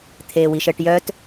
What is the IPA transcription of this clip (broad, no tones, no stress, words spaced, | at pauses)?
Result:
t̪ʰeːwiʃəːʈjœt